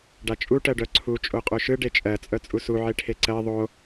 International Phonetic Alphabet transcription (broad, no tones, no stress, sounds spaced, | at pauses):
ɖ a t͡ʃʼ u ʈ ɜ ɖ œ ǀʰ u t͡ʃʼ o qʼ o ʃ ɯ ɖ e t͡ʃʼ ɜ t͡sʼ œ t͡sʼ u s u ʕ e ʈʰ e ǀ ɜ ðˤ o